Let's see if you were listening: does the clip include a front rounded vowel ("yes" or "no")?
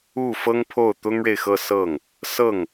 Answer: no